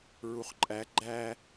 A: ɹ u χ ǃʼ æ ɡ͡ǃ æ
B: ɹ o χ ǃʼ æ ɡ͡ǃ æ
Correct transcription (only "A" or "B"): A